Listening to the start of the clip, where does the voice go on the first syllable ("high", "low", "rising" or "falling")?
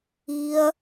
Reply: high